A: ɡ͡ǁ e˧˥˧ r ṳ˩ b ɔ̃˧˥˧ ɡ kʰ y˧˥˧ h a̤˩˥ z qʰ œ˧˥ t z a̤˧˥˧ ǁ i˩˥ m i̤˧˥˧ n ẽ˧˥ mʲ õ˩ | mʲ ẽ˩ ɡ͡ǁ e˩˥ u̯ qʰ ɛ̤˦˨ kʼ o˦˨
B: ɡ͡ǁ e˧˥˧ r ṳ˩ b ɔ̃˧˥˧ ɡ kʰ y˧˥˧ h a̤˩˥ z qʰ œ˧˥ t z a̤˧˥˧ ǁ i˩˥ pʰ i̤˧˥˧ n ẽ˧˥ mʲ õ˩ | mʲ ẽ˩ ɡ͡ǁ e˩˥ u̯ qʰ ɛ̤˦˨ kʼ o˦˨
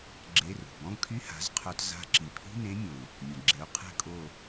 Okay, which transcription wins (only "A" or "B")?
B